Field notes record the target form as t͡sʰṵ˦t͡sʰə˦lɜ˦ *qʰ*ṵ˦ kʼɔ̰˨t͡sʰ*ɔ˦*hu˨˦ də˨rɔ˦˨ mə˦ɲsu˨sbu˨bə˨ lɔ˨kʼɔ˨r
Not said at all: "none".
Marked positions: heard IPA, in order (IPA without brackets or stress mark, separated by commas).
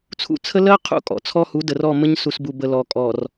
qʰ, ɔ˦